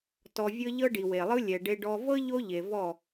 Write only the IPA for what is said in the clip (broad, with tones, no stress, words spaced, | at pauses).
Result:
tɔ˨vʲɤ˧ ʎɤ˦ɖi˨we˨lˠɯ˦ lʲɛ˨ɖe˧ ɖɔ˧ vɤ˦ ʎo˦ʎe˨ vɔ˦˨